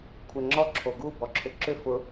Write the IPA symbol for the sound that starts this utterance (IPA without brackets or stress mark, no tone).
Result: kʷʰ